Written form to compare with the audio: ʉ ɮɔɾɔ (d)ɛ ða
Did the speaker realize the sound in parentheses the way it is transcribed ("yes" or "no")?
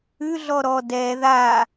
yes